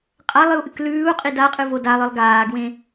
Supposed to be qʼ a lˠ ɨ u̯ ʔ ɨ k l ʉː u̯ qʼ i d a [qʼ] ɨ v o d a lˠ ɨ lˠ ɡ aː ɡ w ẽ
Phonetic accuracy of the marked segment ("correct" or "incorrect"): correct